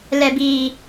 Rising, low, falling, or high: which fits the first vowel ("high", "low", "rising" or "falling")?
low